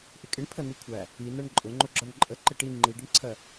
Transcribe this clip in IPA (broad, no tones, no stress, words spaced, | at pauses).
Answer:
ʔɪkʼɪɳ pʰənikʷʰæ | inɜɳ ǃʼʊŋ͡ǃʊɡ͡ǁɒɳ ǃʼəǃɪ ʈi ŋ͡ǃiɖɪɳǀʰɜ